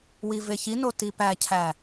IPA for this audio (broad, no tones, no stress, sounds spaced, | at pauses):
w i v e ç i n o t i p æ cʰ æ